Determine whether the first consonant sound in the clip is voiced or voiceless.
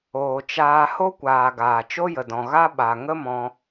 voiceless